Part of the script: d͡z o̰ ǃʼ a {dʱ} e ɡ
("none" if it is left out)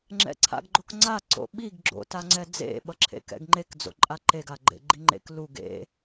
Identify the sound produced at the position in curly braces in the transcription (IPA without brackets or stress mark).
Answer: ǃ